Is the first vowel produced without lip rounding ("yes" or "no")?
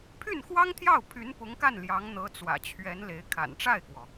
no